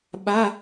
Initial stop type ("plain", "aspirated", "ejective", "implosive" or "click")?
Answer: implosive